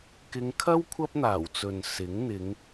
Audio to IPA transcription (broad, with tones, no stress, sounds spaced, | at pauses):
k ɪ˨˧ ŋ kʰ ɐ˥ w kʷʰ ɐ˥ p̚ n̪ aː˨˩ w t͡s ɵ˨ n s ɪ˨˥ ŋ n̪ ɪ˨˧ ŋ